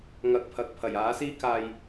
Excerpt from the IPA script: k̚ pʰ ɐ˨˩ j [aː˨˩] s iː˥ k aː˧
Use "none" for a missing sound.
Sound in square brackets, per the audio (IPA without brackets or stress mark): aː˨˥